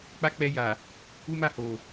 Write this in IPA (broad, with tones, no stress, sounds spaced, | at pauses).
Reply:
k͡p a˦ k͡p ɛ˧ j a˨ | u˦ m a˦˨ h o˨